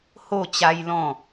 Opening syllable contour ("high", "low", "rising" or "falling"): falling